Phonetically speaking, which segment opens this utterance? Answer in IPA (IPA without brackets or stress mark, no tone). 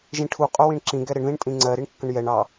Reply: ʒ